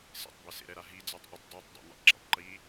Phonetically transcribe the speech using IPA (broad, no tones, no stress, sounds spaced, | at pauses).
s ḛ tˤ b ɛ s ḛ ɾ ɛ ɾ a ɦ i d͡z a tˤ ʔ ʊ tˤ dˤ e tˤ dˤ ḛ n ḭ tˤ ǁ ḭ tˤ ǃ i